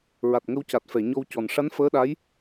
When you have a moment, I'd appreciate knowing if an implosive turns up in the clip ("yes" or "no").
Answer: yes